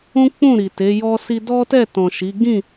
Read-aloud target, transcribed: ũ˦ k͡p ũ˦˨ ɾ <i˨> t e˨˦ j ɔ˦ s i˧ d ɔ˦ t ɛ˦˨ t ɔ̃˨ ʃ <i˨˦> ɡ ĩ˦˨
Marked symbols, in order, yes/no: yes, yes

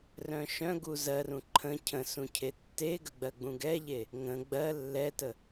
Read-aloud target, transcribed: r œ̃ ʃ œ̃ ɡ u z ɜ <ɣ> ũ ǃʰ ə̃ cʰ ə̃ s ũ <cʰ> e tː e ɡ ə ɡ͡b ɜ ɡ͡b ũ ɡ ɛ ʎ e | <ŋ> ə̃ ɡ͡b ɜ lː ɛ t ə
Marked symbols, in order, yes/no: no, yes, yes

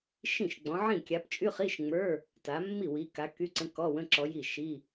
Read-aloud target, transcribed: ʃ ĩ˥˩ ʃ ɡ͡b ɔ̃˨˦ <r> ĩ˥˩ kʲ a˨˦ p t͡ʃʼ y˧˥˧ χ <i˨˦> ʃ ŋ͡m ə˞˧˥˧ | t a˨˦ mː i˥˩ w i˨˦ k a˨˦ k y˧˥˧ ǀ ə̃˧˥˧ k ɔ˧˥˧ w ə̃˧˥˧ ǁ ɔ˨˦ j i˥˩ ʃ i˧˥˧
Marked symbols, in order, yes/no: no, no

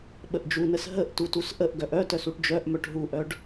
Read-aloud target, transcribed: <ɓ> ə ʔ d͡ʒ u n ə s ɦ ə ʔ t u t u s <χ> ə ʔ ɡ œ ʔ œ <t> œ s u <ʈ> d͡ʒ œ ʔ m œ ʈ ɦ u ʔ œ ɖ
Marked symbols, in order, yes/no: yes, no, yes, yes

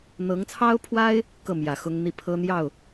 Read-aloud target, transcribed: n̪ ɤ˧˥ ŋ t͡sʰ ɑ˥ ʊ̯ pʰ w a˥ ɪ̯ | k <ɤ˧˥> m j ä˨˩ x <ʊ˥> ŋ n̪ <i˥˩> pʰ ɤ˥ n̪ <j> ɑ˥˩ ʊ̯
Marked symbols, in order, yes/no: no, yes, yes, yes

